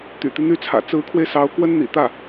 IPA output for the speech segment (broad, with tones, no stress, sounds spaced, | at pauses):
t̪ y̰˨˩ t̪ i˦ n̪ y˥ t͡sʰ ä̰˨˩ t͡s ɹ̩˧˥ kʰ w e˧ ɪ̯ s ɑ˧˥ ʊ̯ k w ə˥ n n̪ ḭ˨˩ t̪ ä˥˩